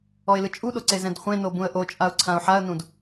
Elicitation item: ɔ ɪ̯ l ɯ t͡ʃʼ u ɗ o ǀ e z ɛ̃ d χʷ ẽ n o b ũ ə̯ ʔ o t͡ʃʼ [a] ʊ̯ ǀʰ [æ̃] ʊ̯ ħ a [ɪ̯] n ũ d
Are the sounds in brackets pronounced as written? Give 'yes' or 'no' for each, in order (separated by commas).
yes, no, no